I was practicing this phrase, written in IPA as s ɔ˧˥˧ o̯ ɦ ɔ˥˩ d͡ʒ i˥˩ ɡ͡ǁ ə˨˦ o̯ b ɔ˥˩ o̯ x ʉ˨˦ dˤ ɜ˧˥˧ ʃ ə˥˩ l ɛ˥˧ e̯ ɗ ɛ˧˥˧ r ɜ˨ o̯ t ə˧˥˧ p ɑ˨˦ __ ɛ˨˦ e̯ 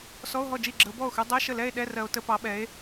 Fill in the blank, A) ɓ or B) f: A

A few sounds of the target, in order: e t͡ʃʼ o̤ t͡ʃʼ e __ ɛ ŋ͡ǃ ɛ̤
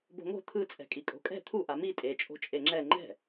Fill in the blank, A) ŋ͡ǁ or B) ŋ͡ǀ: A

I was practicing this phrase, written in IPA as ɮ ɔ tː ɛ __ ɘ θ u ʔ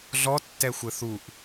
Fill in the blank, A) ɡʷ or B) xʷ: B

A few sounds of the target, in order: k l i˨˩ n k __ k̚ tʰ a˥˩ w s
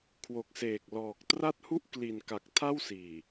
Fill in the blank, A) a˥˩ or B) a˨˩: B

